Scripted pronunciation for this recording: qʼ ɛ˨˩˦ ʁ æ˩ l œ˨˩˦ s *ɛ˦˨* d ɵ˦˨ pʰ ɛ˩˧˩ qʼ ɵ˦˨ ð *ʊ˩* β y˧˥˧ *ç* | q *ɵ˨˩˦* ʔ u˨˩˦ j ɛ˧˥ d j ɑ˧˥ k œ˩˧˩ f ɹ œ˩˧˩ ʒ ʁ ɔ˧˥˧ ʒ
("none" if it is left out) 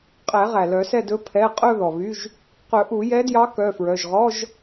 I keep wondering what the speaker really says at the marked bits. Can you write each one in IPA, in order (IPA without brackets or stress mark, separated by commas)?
ɛ˦˨, ɔ˩, ʒ, ɵ˨˩˦